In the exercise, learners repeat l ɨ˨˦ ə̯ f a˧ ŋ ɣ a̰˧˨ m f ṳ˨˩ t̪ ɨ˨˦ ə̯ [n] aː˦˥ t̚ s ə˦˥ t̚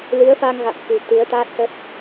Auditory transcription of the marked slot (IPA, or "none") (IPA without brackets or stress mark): t̪